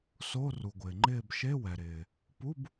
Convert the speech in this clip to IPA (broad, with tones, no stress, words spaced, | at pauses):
so˧˥˧ ru˩ɡʷɪː˩ŋ͡ǃɪː˦˨b ʃe˧˥˧wɛ˩ɾɪː˩ | pu˧˥˧b